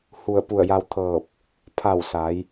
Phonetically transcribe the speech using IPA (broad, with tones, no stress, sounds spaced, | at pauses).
h u˧˩ ə̯ p u˧˩ ə̯ j a˧ w t̪ʰ ɤː˧˩ p̚ | pʰ a˧˩ w s a˩˧ j